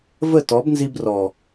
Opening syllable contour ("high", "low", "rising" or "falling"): falling